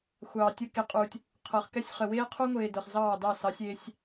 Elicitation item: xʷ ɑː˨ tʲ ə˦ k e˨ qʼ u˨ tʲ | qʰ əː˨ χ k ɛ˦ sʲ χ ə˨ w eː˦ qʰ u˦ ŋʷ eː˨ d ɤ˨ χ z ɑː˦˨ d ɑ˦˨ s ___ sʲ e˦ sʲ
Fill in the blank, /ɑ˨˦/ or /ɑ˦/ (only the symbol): ɑ˨˦